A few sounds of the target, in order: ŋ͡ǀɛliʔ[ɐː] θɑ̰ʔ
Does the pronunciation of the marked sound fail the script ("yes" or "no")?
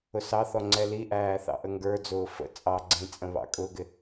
yes